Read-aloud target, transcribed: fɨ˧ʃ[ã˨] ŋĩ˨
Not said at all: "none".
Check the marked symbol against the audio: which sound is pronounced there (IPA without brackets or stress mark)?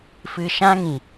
ã˦